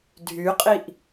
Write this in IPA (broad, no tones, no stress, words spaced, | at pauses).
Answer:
dʱyqʼiʔ